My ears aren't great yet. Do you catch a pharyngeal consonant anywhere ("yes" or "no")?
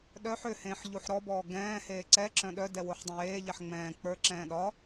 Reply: yes